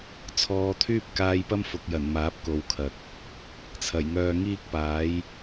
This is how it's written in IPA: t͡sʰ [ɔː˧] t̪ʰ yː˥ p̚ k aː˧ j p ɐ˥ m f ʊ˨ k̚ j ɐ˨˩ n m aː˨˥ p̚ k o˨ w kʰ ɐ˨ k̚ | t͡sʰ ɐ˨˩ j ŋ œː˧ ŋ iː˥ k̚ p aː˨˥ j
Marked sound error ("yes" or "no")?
yes